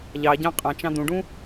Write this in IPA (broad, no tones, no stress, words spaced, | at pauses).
ʎɑ ɟɑ̃qʼɑ̃t͡ʃɑ̃ d̪ũɖũ